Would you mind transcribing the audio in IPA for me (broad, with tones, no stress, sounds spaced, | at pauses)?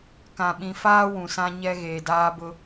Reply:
k ã˨ ɓ ĩ˨ f aː˦ w ũ˨ s ã˦ ɲ ɛ˦ ɣ eː˨ d aː˦ b ʊ˦